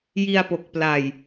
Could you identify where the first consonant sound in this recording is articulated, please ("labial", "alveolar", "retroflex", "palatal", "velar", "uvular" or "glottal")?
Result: palatal